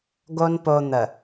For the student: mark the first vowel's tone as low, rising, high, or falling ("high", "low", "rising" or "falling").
high